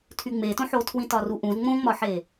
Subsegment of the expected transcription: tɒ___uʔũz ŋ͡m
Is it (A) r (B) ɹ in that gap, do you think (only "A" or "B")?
A